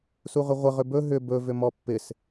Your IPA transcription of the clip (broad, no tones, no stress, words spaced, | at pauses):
suʁʏʁʷɪ ʁʏbɵ ɦʏ bɵ vʏmɔpːɪs